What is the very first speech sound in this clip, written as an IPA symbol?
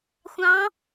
xʷ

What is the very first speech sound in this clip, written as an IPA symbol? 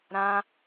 ɾ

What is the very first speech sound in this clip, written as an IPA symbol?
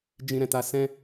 d͡ʒ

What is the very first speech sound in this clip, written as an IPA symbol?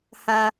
h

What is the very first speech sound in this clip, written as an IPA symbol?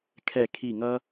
kʰ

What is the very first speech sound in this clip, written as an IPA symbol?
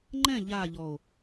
ŋ͡ǃ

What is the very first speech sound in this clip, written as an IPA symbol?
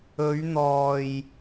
ɵ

